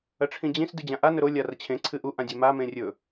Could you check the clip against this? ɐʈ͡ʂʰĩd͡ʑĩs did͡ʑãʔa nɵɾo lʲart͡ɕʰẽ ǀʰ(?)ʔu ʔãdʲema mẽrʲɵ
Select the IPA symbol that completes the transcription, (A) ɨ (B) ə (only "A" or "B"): A